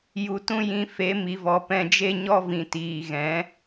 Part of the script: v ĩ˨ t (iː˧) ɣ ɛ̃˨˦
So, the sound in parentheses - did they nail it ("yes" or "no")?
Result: no